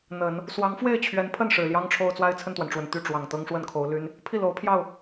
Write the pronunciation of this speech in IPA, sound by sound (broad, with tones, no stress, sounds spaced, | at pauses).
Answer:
n̪ ə˨˩˦ n | s w ɑ˧˥ ŋ f w e˥˩ ɪ̯ t͡ɕʰ ɥ ɛ˧˥ n pʰ ə˥˩ n ʂ ɻ̩˨˩ l j ɑ˥ ŋ ʈ͡ʂʰ o˥˧ ʊ̯ t͡s w a˥˧ ɪ̯ t͡sʰ ə˥˩ n t̪ w a˩ n ʈ͡ʂ w ə˨˩ n t̪ y˥˩ ʈ͡ʂ w ɑ˨˩ ŋ t̪ ɤ˥ ŋ ʂ w ə˥˩ n kʰ o˧˥ ʊ̯ l y˥ n | pʰ i˥˩ l o˧˥ ʊ̯ pʰ j ɑ˥˩ ʊ̯